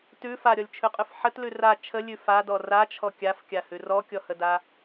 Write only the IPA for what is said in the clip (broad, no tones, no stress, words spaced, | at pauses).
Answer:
tʉ faɾʲɔlʲt͡ʃʰʉqʼʉf ħətlʉ ra t͡ʃʰəlʲʉ fadɔ rat͡ʃʰɔ kʲafkʲahʉ rɔkʲɔhəda